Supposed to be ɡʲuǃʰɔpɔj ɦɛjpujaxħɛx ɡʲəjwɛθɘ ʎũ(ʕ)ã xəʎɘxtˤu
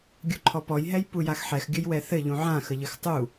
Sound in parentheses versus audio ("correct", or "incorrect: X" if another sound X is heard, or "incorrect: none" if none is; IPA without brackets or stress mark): correct